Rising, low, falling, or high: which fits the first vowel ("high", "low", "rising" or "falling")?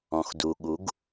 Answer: low